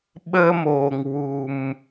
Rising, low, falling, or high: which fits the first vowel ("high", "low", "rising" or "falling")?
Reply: high